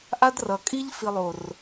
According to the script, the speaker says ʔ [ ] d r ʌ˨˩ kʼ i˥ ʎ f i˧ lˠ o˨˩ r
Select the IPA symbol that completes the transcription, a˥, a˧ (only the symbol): a˥